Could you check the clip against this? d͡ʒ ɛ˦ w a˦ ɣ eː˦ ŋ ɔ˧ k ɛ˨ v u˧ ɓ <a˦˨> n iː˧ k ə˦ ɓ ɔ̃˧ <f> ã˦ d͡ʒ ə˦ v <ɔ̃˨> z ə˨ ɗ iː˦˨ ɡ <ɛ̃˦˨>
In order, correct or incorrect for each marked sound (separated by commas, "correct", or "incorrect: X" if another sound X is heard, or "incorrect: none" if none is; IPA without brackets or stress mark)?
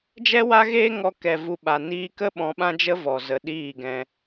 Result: incorrect: a˨, incorrect: ɓ, incorrect: ɔ˨, incorrect: ɛ̃˧